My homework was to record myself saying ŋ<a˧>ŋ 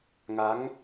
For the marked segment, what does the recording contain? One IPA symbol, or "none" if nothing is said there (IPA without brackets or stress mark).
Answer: a˦˥